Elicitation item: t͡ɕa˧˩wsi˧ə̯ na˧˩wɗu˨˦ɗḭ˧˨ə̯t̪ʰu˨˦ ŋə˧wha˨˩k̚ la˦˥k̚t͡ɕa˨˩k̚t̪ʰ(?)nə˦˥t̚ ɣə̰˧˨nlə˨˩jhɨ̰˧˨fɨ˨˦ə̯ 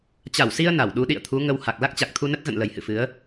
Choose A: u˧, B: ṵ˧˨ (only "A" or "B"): A